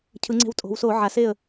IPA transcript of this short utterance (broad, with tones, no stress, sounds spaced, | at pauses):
cʰ ɯ˩˧ ŋ͡ǀ e̤˧ w tʼ o̤˩˧ w s o˧˩˧ ʕ a˩˧ s e˥˨ ə̯